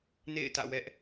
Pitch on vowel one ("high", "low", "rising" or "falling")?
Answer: falling